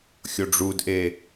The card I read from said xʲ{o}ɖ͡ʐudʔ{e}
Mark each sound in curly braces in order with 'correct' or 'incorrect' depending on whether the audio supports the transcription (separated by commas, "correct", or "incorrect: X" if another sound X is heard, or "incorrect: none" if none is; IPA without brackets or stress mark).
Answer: correct, correct